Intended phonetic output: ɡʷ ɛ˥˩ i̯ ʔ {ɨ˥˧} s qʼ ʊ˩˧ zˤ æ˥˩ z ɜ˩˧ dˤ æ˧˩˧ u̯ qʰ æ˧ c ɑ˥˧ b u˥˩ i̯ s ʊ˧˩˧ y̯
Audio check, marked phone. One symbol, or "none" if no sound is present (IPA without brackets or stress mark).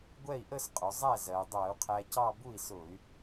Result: ə˥˧